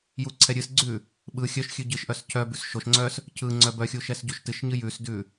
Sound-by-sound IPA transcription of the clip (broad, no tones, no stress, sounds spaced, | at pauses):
j u ǀʰ ɛ ɾʲ ɨ s ɡ͡ǀ ʉ | ɓ ɯ xʲ œ ʃ xʲ ʉ ɟ ɨ ʃ ʔ œ s cʰ œ b ʉ s ʃ o ʃ ŋ͡ǀ œ s | cʰ ɯ ŋ͡ǀ œ b œ xʲ u ʃ ɛ s ɟ u ʃ t ɨ ʃ ɲ ɨ j ʉ s d ʉ